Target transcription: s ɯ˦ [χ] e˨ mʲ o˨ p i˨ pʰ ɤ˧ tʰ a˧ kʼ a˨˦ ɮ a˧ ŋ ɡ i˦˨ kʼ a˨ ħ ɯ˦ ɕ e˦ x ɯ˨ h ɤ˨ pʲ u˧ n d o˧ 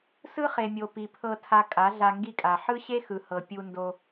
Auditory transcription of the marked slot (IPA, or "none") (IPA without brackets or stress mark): χ